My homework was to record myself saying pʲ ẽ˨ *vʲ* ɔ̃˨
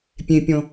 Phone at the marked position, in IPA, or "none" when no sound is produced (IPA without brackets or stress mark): pʲ